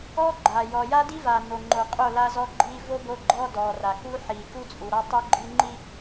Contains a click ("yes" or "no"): yes